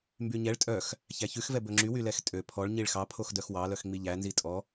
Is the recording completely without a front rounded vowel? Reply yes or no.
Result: no